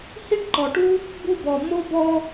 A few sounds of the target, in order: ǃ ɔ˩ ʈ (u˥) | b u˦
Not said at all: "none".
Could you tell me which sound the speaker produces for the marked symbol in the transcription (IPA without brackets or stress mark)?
u˥